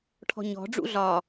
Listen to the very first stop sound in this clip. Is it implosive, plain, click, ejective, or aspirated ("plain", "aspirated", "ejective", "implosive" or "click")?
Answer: aspirated